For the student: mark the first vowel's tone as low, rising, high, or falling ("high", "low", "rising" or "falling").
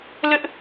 high